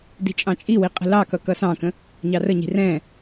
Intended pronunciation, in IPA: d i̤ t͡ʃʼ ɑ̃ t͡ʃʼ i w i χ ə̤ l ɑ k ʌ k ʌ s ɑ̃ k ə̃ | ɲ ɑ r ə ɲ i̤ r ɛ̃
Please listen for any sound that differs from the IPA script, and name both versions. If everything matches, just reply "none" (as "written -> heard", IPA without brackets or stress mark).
χ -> qʼ